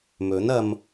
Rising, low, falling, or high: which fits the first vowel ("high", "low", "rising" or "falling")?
rising